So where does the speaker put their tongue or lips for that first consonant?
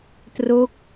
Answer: tongue tip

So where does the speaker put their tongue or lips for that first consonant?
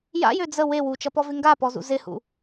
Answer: palate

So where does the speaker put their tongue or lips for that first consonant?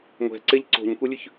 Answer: velum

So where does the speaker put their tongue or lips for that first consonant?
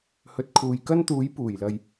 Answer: throat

